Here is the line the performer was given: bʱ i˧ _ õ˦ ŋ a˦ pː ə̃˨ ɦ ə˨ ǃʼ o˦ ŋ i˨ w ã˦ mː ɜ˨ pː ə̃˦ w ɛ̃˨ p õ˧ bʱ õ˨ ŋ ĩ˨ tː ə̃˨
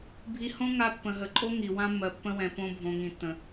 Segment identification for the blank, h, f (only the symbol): h